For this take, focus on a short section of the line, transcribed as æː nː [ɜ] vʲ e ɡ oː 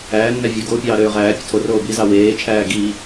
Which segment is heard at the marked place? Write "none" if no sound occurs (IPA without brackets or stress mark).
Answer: æ